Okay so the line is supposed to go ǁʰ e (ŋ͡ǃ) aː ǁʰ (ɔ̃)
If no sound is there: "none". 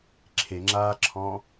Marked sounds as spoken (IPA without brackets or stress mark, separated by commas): ŋ͡ǁ, ɔ̃